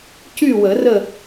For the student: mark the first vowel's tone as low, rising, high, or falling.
falling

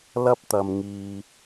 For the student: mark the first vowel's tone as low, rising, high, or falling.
high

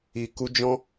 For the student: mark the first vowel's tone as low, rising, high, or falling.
low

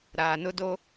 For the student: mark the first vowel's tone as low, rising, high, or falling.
low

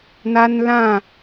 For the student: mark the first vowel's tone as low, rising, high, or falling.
high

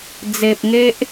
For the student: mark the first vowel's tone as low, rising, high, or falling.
low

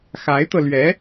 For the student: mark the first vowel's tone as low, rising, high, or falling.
rising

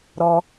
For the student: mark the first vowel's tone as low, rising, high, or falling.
low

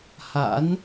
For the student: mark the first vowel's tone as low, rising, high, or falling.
rising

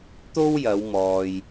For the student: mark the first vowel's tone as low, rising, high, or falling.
high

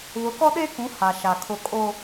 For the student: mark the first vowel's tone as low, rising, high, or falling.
rising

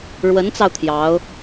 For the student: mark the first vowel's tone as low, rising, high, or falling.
rising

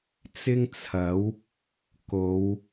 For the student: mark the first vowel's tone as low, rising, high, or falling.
high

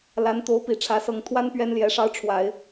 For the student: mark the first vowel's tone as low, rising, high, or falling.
rising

